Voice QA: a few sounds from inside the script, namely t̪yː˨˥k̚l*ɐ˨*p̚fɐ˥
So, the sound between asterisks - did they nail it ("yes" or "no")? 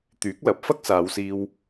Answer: no